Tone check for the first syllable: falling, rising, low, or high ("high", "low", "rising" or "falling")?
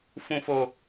low